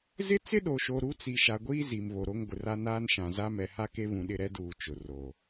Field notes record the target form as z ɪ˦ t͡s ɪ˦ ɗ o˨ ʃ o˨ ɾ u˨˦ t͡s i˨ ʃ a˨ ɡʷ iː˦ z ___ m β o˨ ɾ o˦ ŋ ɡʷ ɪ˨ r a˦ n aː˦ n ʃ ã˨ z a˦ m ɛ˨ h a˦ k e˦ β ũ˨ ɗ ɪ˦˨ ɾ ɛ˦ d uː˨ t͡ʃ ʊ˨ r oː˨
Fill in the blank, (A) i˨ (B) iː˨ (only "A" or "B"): A